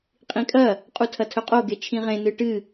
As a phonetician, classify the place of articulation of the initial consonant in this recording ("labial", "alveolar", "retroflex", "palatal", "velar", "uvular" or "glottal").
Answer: uvular